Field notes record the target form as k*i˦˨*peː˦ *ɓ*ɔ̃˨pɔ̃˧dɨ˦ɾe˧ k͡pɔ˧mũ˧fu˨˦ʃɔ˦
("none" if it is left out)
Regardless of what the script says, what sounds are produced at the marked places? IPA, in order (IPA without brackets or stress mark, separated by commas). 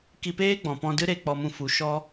i˧, ɡ͡b